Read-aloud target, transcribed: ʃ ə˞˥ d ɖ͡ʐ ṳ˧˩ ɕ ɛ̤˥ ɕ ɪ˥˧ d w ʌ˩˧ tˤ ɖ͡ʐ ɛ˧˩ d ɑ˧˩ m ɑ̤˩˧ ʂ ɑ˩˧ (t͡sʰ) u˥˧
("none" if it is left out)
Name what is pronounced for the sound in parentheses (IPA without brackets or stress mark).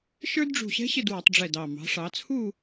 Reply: t͡sʰ